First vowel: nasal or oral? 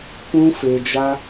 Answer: nasal